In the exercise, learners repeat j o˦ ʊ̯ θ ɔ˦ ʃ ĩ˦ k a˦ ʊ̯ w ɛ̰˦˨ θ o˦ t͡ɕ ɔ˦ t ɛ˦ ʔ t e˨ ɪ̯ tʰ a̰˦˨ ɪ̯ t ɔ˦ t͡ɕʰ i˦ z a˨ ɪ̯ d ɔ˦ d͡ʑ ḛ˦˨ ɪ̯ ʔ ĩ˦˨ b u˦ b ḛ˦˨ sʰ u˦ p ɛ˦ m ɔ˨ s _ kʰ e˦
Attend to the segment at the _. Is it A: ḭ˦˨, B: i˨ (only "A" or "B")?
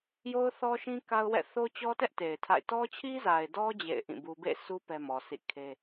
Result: A